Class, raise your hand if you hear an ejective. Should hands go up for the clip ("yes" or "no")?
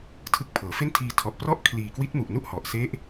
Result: no